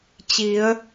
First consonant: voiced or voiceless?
voiceless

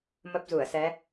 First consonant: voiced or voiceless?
voiced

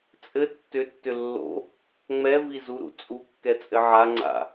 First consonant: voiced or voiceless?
voiceless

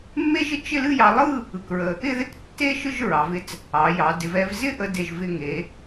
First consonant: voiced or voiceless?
voiced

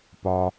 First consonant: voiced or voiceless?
voiceless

